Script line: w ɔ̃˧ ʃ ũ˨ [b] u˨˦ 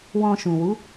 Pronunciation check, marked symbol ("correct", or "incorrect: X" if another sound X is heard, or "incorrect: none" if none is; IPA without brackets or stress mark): incorrect: w